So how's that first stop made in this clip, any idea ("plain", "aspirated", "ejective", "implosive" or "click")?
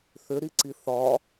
click